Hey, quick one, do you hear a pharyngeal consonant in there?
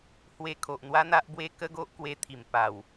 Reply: no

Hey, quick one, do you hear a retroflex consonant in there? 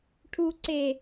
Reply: yes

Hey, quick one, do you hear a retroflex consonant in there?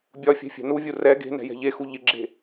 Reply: no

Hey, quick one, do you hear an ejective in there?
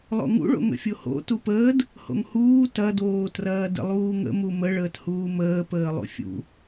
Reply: no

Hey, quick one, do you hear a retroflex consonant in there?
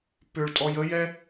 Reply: yes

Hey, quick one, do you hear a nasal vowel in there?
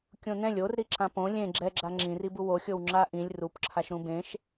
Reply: yes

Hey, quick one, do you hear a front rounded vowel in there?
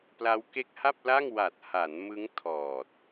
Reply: no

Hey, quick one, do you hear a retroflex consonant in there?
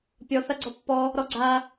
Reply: no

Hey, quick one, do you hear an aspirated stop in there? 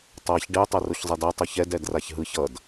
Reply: no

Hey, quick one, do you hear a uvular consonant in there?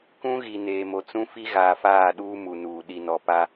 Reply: no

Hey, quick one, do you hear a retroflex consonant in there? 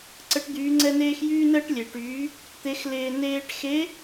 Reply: yes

